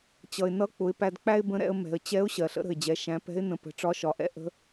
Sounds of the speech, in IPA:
t͡ɕ ʌ˩ ɪ̯ n ʌ˧˥ k͡p ʊ˩˧ ɪ̯ p æ˧ d k͡p æ˥ ɪ̯ b ə̃˧˥ ɾ ɛ̰˩˧ ə̯ m ɛ̤˩ ə̯ t͡ɕ ɛ˧˥ ʊ̯ ɕ ɜ˩ ɬ ə̰˥ ɾ ə̤˩ ɪ̯ d͡ʑ ɛ˩˧ ʃ æ̃˩˧ p ɛ̤˧˥ ɪ̯ n ə̃˩˧ p ə̤˩˧ ʈ͡ʂ ɒ˧˥ ʃ ɒ˩˧ ʔ ɛ̰˥ ʔ ə̤˧˥

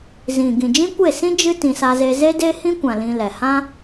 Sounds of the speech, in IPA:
z ĩ˨ ɡ ĩ˨ d͡ʒ ĩ˦ kʷ e˦˨ s ĩ˦ d͡ʒ ɨ˦ t ĩ˧ s a˦ z e˦ z e˦ d e˦ h ĩ˦ kʷ ã˨ l ĩ˧ l ɛ˨ h ã˦

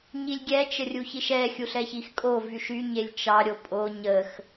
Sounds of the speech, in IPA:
ɲ i lʲ ɡʲ ɛ t͡ʃ ə rʲ u ç i ʃ ɛ xʲ u ɬ ɛ ç i x kʼ o v y ʃ y ɲ e lʲ t͡ʃ ɑ ɾʲ o pʼ o ɲ ə x

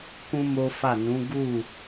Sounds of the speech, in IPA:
k ũ˦ m o˦ f a˦˨ n ũ˨˦ ɡ u˦˨

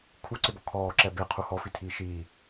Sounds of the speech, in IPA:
kʰ u ǀ ɪ b ɔ kʰ ɔː ǁ ɛ b e qʰ u h ɔ f i tʰ iː ʃ iː

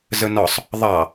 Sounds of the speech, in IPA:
z ə n ɒ sˤ | ðˤ ɑ

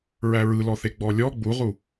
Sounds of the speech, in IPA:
ɹ æ ɹ ɯ l ɔ θ e ɡ͡b ɔ lʲ ɔ ɡ͡b u ʁ u

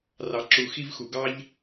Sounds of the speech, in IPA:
r ɑ˨ ǁ u˨ x i˦ v x u˨ ɡ ɑ˦ ʎ

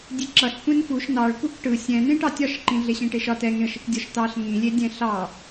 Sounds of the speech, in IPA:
dʲ e ǁ ʌ ɬ kʷ ẽ n f u ʃ n ɑ ɭ kʷ ɛ kʷ ʈ ɯ sʲ ɛ̃ n ẽ ʈ ɑ tʲ ɒ ʃ ǃ ĩ ɮ e ɕ ẽ ʈ e ʃ ɒ t ɛ ŋ ẽ ə̯ ʃ i kʷ dʲ ɒ ʃ t ɑ ɬ ŋ ĩ lʲ e dʲ ɛ̃ ɬ ɑ

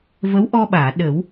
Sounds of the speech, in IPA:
v ə˧˥ w ʔ ɔ˧ ɓ aː˨˩˨ ɗ ə˨˩˦ w

